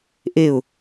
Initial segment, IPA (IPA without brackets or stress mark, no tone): ʔ